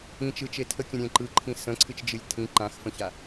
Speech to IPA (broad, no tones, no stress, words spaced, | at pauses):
ĩt͡ʃɯt͡ʃe tʰəkʲə̃ɾʲẽ ǃɯǃʰĩ sə̃ǀʰɨt͡ʃd͡ʒɨlʲ tʰĩ ǃãxfə̃ça